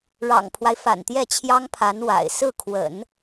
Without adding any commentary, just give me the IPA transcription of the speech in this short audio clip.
ɻ ɑ̰˨˩ ŋ pʰ w a˦ ɪ̯ f a̰˨˩ n t̪ j ɛ˥˩ t͡ɕʰ j ɑ˥ ŋ pʰ a˧˥ n w a̰˨˩ ɪ̯ s ɹ̩˥˩ kʰ w ə̰˨˩˦ n

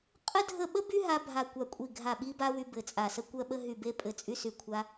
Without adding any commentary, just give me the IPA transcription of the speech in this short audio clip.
qʼ ə˥ dʱ ə˦˨ ɓ ə˥ b y˥ ɦ a˥ bʱ a˦˨ kʷ a˦˨ kʷʼ i˦˨ ɡʱ a˦˨ ɓ i˥ b a˥ w y˥ b ɘ˦˨ t͡sʼ a˦˨ s ə˥ kʷ ɜ˥ ɓ ə˥ ɦ y˦˨ b e˥ pʼ ɘ˦˨ t͡sʼ y˥ s y˦˨ kʷʰ a˥

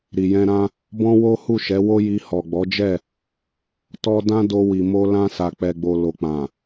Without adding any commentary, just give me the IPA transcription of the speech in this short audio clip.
ɾ i˨ j ɛ̃˧ ɾ ã˦ | b ɔ̃˦ w o˦ h u˦˨ ʃ ɛ˨˦ w o˦ j i˧ h ɔ˨ ɡ͡b ɔ˨˦ d͡ʒ ɛ˦˨ | t ɔ˧ d ã˦ d o˧ w i˨ m o˧ l ã˧ s a˨ k͡p ɛ˨ ɡ͡b o˨ l o˨ k͡p ã˨

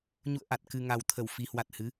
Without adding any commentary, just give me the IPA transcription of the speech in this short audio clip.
ɲ ṵ˧˨ ə̯ ʔ a˨˩ t̚ k ɨ˨˩ ŋ a˨˩ w t̪ʰ ə˧˩ w f i˨˩ h w a˨˩ t̚ h ɨ˨˦

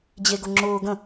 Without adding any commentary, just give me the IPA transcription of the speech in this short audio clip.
d͡ʑ e ɡ ʊ ŋ͡ǁ ʊː ɡ ə̃

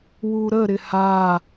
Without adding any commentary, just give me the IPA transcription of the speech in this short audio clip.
w u ɾ ə ɾ ɪ h a

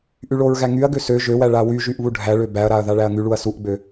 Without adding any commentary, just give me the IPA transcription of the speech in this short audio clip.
ʔ y ɭ o ɹ ɣ æ ŋ y ɐ̯ ɡ ø s ø ʒ ø w æ ɭ a w y ʒ y ʔ β u ɖʱ æ ɭ ø b æ ɐ̯ ɾ a ɐ̯ ð a ɭ æ ɐ̯ ŋ y ɭ u ɐ̯ s u ʔ ɡ͡b ø

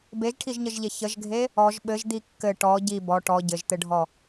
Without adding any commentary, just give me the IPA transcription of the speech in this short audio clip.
b e ʒ ʈʰ i ʒ ɲ ə ʒ ʎ e ç ə ʒ ɡʱ e | ɔ ʒ ɓ ɘ ʒ d̪ i kː ɘ ʈ ɔ ɟ i b ɔ ʈ ɔ ɟ ɘ ʒ t̪ ɘ ɖʱ ɔ

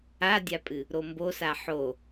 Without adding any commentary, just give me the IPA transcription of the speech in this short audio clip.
a dʲ a pʼ ɨ | ɾ o m b o s a ħ o

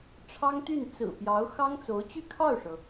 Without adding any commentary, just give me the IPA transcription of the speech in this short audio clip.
ʈ͡ʂʰ ɑ˥ ŋ t̪ y˥˩ n t͡s ɹ̩˨˩ p j ɑ˧˥ ʊ̯ x ɑ˥ ŋ t͡s o˧˥ ʊ̯ t͡ɕ y˥˧ kʰ ɑ˥˩ ʊ̯ ʂ ɤ˩

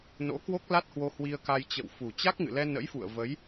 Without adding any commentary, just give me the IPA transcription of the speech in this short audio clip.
n o̰˧˥ k w o˦˥ k̚ l a˦˥ t̚ h w o˧ h w i˧ ə̯ k a˧ j t͡ɕ ə̰˧˨ w f u˨˩ t͡ɕ a˦˥ k̚ ŋ ɨ̰˧˨ l ɛ˧ n ə̰˧˥ j f ṵ˧˨ ə̯ v ə˨˦ j

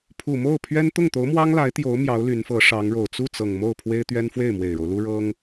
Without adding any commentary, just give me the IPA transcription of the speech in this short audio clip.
pʰ u˨˩ m o˥˩ ʊ̯ pʰ ɥ ɛ˥ n t̪ ʊ˥˩ ŋ t̪ o˧˥ ʊ̯ m w ɑ˥ ŋ l a˧˥ ɪ̯ t̪ j o˧˥ ʊ̯ m j ɑ˧˥ ʊ̯ l y˧˥ n f ɤ˧˥ ʂ ɑ˧˥ ŋ ɻ o˨˩ ʊ̯ t͡s u˥˩ t͡s ɤ˨˩ ŋ m o˥˩ ʊ̯ pʰ w e˥ ɪ̯ t̪ ɥ ɛ˥ n f w e˥˩ ɪ̯ m w e˨˩ ɪ̯ ɻ o˦ ʊ̯ l u˥ ɻ ɤ˥ ŋ

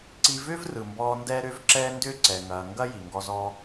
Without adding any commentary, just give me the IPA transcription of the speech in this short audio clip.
ǀ i˧ v ʏː˦ v r ɯ˨ m b ɔː˧ n d ɛː˦ ɾ ʏː˦ v ǁ ɛː˦ n d ʏː˦ ǀ ɛ˨ ŋ ɐː˨ ŋ ɡ ɐ˦ j i˨ ŋ ɡ ɔ˦ z ɔː˦

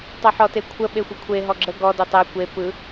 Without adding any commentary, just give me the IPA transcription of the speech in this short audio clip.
tˤ ɵ ħ ɔ t e kʷʰ ə ɓ e xʷ ə kʷʰ e ɦ ɔ ɡ͡ǁ ə ɡ ɔ d u tˤ e kʷ e p ɯ

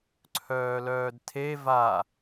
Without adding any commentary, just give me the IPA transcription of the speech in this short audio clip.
ǀʰ œː l œː d tʰ e v a

